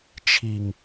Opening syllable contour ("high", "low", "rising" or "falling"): low